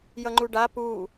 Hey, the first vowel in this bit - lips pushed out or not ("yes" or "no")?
no